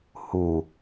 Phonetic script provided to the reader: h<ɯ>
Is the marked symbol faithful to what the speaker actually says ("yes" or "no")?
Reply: no